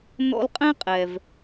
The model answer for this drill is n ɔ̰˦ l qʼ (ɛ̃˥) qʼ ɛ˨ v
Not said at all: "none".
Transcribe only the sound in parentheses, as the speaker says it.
ɛ̃˥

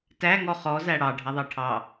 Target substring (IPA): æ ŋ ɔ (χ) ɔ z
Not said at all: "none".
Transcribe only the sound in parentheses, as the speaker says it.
χ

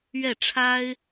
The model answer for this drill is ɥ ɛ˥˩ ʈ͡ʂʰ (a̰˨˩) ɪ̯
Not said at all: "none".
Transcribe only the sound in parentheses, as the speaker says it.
a˥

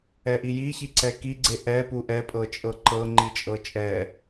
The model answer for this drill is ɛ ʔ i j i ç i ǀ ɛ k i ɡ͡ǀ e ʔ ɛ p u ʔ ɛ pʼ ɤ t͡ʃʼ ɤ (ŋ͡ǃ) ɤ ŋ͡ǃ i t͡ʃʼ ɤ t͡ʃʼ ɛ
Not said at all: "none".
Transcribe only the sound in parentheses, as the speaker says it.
ǃ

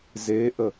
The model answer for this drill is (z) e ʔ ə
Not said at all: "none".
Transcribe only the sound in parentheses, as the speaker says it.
z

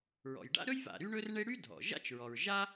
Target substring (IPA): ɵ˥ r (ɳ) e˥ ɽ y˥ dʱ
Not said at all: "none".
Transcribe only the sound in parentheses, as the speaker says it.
ɳ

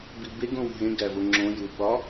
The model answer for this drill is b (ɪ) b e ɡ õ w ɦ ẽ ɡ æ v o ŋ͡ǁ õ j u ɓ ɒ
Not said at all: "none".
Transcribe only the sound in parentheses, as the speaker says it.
i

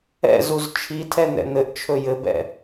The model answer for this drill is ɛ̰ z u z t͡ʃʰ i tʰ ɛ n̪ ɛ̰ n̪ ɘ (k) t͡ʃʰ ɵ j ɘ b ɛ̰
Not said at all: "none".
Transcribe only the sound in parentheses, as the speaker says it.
ʔ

